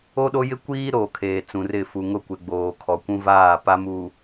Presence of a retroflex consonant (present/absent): absent